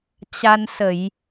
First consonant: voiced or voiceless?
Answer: voiceless